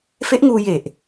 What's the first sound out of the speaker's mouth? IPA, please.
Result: f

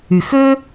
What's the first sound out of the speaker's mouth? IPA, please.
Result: y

